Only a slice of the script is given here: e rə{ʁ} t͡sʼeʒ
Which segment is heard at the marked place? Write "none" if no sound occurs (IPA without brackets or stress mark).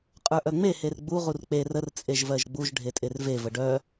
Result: r